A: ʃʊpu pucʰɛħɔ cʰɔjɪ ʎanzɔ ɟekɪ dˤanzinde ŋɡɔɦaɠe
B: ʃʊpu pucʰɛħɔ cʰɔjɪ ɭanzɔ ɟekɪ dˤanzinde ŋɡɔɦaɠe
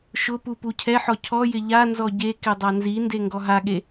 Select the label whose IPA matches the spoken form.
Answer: A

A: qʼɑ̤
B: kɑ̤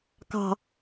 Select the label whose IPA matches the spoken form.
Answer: B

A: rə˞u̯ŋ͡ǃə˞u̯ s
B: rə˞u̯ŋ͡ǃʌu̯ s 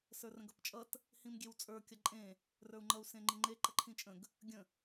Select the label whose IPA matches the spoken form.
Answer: B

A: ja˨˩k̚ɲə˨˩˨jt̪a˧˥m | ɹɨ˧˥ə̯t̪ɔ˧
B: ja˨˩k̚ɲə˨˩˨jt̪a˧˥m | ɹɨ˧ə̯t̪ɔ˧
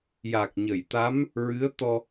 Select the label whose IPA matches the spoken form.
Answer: A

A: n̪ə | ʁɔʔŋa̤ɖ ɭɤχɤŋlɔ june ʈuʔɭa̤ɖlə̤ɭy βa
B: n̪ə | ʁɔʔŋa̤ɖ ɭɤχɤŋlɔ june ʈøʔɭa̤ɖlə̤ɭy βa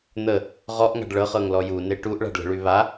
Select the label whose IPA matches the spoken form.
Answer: A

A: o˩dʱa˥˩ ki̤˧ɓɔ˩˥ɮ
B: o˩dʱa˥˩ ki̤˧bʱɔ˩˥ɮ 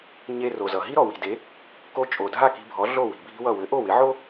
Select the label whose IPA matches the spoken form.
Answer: B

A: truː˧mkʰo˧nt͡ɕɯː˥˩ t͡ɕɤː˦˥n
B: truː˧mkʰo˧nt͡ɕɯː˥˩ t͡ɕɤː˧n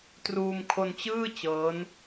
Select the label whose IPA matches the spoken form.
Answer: A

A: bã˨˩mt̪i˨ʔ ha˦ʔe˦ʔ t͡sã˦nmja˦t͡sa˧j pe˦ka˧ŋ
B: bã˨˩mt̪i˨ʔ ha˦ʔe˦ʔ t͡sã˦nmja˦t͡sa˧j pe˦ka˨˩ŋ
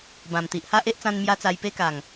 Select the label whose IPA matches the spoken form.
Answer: B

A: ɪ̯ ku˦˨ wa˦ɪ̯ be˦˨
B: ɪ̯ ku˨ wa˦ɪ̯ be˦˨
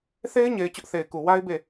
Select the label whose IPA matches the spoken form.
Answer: B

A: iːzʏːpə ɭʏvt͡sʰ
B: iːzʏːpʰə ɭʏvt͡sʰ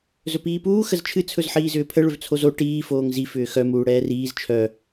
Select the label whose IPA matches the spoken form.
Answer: B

